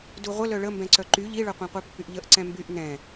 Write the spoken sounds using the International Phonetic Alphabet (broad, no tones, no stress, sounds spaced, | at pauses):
d u ʁʷ ə l œ ɭ ə m b ɛ̃ ǀ œ ǃ y ʎ i ɭ œ qʷ ɛ̃ qʷ œ pː y ʔ ʎ ə ʔ ǀ ɛ̃ m b y ʔ n ɛ̃